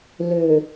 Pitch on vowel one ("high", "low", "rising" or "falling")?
low